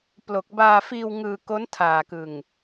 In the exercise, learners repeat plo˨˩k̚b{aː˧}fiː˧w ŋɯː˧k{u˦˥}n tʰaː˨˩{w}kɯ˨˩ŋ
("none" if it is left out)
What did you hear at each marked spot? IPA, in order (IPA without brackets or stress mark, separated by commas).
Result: aː˧, o˦˥, none